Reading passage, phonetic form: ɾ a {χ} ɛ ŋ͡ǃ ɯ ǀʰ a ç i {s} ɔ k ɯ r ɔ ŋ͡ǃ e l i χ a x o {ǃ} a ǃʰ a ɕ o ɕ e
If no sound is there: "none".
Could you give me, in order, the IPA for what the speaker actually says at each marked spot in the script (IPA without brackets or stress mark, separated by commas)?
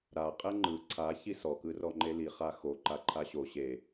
qʼ, s, ǃ